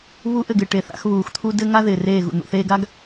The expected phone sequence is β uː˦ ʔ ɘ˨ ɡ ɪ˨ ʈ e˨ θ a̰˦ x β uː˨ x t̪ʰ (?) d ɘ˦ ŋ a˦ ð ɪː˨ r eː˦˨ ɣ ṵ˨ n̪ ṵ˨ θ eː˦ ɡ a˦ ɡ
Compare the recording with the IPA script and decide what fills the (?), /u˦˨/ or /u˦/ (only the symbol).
u˦